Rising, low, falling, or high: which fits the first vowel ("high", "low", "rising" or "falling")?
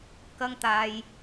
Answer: high